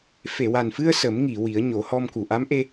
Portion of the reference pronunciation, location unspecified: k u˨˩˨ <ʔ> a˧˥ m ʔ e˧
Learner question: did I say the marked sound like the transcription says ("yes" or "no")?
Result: yes